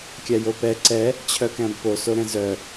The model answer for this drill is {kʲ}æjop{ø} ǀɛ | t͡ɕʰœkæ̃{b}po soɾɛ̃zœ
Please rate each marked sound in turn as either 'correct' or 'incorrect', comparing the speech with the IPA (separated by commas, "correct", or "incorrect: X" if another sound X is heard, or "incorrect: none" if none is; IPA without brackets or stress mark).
correct, incorrect: ɛ, correct